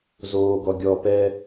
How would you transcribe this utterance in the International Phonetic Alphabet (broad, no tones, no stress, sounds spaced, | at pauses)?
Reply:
z oː ɡ ɔ ɡʲ ɔ p ɛ